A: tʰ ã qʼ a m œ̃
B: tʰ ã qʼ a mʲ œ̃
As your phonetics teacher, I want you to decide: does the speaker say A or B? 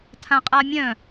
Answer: B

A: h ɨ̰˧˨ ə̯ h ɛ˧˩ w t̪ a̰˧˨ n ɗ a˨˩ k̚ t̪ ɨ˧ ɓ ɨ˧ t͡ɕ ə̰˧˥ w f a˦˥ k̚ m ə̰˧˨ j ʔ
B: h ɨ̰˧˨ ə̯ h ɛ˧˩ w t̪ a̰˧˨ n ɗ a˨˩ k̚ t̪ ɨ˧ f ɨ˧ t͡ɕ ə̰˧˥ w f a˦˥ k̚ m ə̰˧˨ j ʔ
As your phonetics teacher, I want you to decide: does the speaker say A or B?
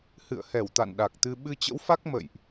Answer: A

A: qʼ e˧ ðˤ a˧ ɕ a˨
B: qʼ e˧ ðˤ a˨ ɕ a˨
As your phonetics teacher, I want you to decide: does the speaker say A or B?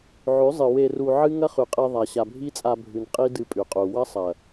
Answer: B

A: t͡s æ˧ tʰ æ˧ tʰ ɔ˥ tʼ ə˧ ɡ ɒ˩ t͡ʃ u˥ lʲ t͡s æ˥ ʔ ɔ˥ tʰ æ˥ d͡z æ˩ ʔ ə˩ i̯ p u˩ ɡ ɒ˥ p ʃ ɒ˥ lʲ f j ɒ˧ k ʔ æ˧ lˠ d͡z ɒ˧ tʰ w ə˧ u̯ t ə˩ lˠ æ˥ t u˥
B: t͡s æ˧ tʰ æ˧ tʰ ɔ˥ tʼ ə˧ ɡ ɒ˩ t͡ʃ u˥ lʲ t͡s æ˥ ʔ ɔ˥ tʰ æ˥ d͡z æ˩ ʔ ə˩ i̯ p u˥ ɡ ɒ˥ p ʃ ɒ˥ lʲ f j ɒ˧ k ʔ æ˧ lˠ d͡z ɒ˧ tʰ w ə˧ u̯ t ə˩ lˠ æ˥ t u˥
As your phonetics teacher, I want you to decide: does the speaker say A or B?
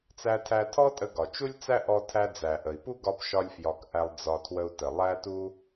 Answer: B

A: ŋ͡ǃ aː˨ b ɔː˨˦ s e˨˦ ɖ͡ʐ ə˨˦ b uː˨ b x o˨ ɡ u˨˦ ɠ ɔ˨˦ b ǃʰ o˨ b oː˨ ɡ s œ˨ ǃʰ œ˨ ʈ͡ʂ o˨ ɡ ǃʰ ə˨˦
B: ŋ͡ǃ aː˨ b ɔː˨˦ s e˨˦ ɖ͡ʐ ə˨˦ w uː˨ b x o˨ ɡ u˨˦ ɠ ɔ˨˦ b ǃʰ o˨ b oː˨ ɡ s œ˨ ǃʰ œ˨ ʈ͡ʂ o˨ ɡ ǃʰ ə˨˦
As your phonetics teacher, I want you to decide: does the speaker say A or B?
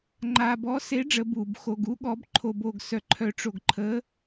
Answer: A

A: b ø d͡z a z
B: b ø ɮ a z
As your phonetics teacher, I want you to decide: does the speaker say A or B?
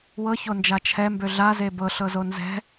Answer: B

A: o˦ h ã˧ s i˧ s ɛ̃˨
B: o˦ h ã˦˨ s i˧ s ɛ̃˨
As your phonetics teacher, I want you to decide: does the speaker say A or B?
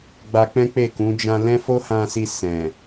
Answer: A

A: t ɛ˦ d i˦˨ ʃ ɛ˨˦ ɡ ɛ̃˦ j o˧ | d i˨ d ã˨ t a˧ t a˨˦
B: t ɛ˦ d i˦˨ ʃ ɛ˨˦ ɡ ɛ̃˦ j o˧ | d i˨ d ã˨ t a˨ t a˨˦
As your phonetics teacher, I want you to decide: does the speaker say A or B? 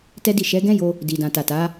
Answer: B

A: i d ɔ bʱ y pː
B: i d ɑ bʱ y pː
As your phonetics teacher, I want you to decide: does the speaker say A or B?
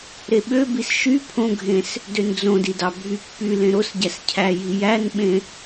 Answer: B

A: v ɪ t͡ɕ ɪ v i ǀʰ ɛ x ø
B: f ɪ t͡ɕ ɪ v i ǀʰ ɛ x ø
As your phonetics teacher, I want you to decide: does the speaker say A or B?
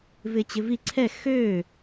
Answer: A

